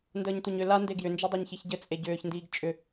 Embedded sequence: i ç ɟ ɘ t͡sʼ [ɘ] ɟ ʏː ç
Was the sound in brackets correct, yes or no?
no